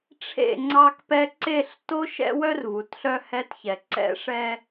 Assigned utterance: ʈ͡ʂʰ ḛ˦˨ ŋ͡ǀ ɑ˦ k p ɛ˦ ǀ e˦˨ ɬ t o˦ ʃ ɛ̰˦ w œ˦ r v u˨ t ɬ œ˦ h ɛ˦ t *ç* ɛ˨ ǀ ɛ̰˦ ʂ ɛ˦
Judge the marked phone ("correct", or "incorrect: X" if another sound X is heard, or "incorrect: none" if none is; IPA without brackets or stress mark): correct